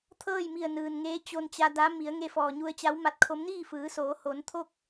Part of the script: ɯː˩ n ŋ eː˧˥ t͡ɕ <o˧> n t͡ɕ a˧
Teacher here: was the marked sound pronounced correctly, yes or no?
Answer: yes